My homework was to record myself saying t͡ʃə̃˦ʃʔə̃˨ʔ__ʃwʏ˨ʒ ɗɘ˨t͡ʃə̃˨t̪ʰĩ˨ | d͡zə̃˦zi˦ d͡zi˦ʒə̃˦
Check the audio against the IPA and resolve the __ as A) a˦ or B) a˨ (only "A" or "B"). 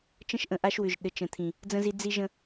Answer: A